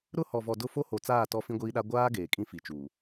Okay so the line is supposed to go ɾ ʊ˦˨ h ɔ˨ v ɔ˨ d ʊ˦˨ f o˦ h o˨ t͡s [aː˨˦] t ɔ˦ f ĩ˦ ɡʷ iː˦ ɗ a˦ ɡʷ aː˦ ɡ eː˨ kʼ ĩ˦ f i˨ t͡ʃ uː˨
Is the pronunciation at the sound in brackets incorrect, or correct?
incorrect